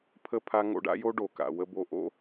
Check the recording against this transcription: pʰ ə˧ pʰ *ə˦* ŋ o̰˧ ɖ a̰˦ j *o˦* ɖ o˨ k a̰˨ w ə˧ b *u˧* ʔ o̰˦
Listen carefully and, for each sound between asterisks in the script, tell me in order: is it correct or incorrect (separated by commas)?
incorrect, correct, incorrect